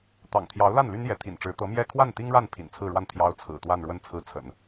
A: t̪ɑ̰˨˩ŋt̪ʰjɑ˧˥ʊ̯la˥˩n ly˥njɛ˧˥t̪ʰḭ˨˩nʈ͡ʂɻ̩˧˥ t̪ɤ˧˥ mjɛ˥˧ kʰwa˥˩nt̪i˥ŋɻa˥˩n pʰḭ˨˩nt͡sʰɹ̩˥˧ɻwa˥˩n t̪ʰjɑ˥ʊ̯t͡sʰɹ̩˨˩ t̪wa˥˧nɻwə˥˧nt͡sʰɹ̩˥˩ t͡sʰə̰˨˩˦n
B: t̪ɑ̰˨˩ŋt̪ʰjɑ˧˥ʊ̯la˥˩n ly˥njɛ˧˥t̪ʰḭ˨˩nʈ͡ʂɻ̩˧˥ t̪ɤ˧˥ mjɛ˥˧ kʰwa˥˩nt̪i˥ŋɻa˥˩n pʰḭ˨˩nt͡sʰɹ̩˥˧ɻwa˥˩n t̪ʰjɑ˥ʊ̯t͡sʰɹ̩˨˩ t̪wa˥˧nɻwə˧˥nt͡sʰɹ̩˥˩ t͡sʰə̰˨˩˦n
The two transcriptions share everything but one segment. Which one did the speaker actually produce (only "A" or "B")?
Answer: A